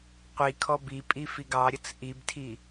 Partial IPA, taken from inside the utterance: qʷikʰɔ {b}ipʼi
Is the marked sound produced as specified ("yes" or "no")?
yes